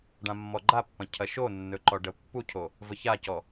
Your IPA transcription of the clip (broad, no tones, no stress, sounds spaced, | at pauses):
ɖ ã mː ɔ ɡ͡ǃ a pː ɐ̃ cʰ ɐ ʃ o nː ɵ ǃ ɔ ɖ ə pː u cʰ o | v ə ç a c ɔ